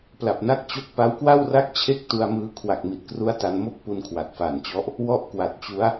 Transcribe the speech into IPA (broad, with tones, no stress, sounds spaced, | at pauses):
p l a˨˩ p̚ n a˦˥ k̚ t͡ɕ o˥˩ k̚ p a˦˥ w k w a˥˩ w r a˥˩ k̚ t͡ɕʰ e˥˩ k̚ t u˧ a̯ m ɯː˦˥ kʰ w a˨˩ k̚ m i˨˩ t̚ k r u˦˥ a̯ t a˧ n m o˥˩ k̚ p u˧ n kʰ w a˨˩ t̚ f a˨˩ n t͡ɕ ɔ˦˥ ʔ | w ɔ˥˩ ʔ k w a˨˩ t̚ t͡ɕ u˦˥ a̯